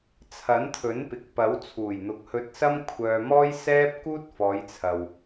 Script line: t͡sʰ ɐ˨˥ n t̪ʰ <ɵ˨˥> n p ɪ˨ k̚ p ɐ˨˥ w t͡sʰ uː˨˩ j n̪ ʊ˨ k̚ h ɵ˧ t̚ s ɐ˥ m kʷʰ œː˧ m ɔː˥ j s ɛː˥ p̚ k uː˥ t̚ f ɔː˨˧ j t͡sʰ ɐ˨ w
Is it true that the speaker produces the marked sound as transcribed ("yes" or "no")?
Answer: yes